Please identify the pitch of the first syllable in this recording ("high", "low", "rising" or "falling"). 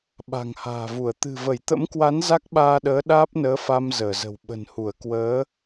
low